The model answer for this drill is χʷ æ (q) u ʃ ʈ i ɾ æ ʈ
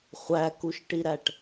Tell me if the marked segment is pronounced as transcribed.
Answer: no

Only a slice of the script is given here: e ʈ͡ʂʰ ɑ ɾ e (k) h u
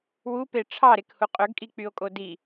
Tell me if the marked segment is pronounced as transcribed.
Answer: yes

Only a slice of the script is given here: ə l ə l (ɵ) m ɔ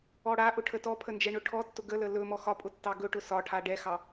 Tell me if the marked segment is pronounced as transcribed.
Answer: yes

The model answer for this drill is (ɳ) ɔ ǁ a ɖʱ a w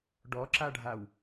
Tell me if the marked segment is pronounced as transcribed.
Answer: no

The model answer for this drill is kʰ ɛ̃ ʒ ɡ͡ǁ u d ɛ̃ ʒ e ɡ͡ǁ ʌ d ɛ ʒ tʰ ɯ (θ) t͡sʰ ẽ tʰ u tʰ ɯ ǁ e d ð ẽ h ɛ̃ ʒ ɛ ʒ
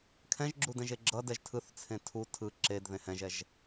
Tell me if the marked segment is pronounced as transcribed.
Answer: yes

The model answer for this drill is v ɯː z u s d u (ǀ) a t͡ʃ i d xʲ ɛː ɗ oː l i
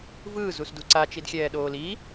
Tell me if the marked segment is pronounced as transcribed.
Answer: yes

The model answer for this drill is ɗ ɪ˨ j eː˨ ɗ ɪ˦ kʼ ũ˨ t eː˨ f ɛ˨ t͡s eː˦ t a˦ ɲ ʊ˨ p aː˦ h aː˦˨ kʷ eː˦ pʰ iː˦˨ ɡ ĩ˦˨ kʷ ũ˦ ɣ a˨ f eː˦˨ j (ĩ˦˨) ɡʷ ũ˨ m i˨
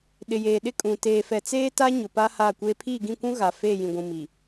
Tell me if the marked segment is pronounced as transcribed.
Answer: no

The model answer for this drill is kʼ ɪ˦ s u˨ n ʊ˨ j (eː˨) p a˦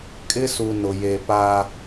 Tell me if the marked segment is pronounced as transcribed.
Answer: no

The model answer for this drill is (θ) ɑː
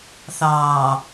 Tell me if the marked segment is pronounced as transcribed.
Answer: yes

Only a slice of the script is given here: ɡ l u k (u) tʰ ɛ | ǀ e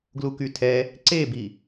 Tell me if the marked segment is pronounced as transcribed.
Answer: no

